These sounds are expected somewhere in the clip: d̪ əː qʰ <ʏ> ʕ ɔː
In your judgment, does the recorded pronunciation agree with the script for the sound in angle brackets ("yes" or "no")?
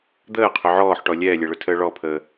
yes